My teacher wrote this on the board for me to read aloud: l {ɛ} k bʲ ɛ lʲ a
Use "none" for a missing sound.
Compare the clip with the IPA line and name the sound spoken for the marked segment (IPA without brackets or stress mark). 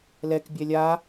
ɛ